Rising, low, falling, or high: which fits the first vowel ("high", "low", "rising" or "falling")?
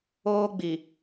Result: high